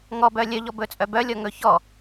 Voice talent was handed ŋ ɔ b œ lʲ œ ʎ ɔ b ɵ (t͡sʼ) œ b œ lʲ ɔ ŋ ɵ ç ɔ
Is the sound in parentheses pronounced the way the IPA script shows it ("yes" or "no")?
yes